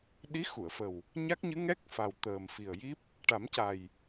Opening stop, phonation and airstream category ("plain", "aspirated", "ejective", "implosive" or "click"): implosive